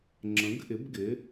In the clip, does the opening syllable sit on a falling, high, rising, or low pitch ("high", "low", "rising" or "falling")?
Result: rising